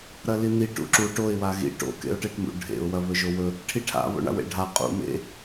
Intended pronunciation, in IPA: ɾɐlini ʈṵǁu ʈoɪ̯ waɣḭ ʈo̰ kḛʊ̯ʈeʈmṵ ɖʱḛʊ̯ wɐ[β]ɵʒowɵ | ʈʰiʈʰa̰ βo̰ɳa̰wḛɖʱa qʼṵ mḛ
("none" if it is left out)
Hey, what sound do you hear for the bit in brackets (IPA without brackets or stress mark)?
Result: β